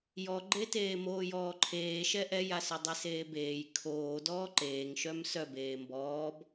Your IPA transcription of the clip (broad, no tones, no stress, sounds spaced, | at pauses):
j ɔ ɡ͡ǃ e t eː m oː j ɔː ǃʰ eː ʃ ɛ ʔ ɛ j a s œ dˤ e s eː b eː j kʰ oː d ɔː ǃ eː ŋ ʃ œ m s œ b eː m b ɔː b